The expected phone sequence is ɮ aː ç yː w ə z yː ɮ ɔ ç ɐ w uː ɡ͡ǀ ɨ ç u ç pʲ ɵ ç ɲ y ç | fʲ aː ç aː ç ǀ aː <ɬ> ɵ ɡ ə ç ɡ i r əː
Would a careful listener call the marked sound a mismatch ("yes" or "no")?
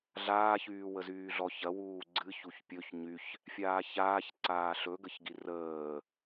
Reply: no